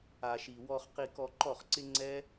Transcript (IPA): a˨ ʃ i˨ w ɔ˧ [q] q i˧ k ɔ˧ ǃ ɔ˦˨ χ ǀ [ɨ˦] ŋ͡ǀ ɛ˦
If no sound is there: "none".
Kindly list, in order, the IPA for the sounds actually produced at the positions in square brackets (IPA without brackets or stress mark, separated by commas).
χ, ɪ˦